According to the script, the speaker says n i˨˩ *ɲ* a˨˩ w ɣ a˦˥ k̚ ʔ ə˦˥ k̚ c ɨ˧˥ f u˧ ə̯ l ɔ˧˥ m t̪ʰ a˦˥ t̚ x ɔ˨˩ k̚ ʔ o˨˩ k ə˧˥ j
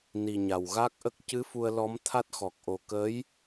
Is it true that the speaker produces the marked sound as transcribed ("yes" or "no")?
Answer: yes